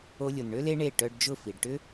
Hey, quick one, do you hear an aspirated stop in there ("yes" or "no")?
no